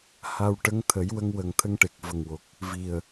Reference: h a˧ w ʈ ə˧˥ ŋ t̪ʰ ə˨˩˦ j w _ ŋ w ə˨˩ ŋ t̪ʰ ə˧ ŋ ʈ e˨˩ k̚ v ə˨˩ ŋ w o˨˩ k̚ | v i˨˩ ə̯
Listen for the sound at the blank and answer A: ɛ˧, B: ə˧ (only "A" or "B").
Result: B